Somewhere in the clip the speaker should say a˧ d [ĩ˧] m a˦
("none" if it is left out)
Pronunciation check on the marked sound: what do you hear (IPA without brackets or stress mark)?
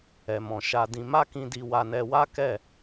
ĩ˧